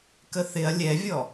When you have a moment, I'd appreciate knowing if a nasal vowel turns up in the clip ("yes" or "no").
no